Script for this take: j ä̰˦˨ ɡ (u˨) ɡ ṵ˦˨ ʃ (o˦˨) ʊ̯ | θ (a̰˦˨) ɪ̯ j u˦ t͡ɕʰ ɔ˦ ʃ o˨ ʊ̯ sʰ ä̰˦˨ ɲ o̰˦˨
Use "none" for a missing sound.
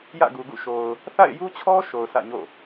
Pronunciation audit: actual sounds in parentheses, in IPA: u˨, o˨, a̰˦˨

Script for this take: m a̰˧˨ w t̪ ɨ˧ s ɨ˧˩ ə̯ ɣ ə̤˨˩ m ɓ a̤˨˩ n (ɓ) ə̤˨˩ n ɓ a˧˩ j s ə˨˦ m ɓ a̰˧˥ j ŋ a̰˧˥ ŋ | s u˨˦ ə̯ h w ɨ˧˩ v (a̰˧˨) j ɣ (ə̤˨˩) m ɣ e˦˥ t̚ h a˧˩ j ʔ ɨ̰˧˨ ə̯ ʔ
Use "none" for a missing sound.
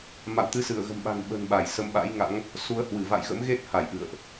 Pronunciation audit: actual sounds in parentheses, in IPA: ɓ, a̰˧˨, ə̰˧˥

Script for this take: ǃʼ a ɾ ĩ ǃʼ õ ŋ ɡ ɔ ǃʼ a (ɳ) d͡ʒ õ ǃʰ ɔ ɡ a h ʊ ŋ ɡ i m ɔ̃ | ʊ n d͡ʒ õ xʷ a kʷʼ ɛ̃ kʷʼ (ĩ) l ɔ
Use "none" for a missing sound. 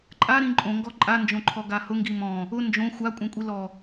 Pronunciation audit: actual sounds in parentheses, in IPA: n, i

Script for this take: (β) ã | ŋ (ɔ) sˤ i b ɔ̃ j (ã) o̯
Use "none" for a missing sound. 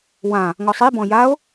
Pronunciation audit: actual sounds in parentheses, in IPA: w, ɔ, a

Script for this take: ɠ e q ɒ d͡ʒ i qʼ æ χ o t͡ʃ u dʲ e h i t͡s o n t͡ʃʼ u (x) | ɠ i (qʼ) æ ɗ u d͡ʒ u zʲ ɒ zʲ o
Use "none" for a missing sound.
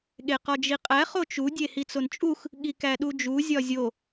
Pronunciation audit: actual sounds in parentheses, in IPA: x, k

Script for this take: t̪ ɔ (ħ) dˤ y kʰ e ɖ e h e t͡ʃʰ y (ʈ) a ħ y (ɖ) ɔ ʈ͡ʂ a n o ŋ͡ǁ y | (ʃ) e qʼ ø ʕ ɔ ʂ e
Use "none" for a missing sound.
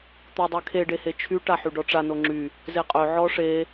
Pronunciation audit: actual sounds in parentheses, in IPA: none, ʈ, ɖ, z

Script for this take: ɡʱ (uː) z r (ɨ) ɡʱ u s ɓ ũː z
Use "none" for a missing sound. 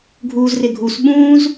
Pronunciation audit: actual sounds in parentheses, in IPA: uː, ɪ

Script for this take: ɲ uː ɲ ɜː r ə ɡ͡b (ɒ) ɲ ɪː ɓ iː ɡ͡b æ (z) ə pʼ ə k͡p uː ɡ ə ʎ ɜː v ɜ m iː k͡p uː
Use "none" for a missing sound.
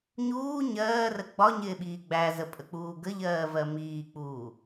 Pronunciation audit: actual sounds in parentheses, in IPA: ɒ, z

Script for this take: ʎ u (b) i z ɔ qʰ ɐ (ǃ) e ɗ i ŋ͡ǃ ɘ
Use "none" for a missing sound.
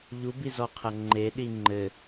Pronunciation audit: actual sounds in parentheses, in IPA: b, ŋ͡ǃ

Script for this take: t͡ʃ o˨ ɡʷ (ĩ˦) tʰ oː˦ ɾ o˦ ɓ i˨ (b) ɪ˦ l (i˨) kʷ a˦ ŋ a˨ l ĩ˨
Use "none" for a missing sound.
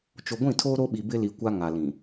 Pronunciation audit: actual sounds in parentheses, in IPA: ĩ˦˨, b, i˨

